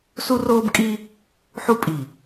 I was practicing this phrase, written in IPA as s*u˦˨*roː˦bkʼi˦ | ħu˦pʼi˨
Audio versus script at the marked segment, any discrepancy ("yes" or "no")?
yes